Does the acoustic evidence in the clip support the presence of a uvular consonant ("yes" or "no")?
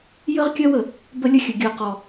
yes